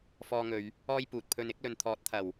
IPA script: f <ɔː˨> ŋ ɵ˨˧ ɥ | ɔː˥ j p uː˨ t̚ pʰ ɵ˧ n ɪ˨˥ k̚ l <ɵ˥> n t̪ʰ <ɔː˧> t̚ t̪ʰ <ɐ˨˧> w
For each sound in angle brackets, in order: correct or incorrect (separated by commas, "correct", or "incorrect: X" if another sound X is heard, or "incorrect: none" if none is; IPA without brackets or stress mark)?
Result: incorrect: ɔː˧, incorrect: ɵ˨, incorrect: ɔː˨˥, incorrect: ɐ˨˩